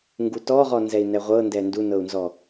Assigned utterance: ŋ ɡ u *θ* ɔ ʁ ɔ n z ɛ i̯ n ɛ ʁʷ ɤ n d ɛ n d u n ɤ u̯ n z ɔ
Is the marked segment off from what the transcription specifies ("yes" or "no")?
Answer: yes